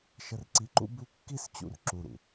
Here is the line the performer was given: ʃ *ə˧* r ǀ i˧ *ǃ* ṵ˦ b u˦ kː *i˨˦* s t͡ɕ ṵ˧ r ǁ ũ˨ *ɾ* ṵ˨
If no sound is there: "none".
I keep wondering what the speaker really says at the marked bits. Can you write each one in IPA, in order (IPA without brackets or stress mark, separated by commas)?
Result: ə˧, ǃ, i˦, ɾ